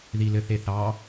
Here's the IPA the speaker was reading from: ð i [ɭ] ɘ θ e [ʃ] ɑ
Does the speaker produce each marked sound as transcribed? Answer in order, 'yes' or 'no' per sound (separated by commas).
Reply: no, no